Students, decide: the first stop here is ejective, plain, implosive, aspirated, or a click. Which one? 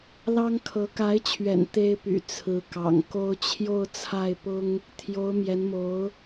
aspirated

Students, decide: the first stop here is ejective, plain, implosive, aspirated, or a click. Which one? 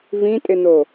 ejective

